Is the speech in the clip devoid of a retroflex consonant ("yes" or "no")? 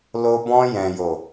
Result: yes